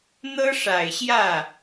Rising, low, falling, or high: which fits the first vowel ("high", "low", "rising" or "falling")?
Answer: high